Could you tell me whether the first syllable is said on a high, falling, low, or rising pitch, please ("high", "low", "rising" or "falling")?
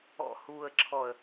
low